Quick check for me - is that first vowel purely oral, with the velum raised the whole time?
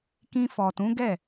no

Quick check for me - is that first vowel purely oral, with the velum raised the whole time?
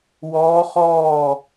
yes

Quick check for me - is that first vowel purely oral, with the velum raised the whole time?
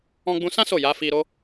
no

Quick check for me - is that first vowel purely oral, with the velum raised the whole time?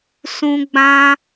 no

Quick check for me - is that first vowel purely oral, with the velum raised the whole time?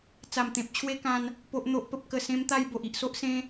yes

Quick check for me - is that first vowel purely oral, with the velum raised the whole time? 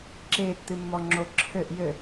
yes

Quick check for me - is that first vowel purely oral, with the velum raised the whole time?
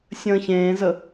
no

